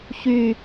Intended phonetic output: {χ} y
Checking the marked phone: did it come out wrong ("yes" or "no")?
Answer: yes